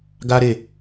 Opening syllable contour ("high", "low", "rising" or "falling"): high